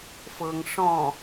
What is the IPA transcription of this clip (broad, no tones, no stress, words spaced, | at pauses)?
fɤŋ ʂɔ̃